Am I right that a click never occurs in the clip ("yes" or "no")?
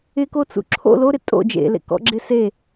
no